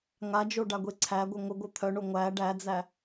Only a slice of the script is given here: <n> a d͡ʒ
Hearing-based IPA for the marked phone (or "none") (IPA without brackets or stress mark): ŋ